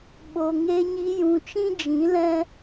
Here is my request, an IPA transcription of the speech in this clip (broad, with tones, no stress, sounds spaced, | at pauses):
ɓ o˨ ŋ e˧ ɲ i˧ j ũ˨ t͡ʃ ĩ˦ d͡ʒ ĩ˨˦ l ɛ̃˦